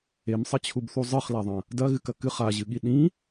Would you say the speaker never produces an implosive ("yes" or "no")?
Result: no